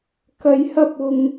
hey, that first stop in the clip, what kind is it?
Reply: plain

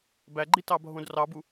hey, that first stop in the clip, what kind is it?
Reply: plain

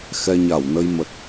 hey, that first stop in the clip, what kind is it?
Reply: plain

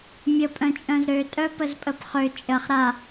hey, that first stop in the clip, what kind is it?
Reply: ejective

